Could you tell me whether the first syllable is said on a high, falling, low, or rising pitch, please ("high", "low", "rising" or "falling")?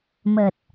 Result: low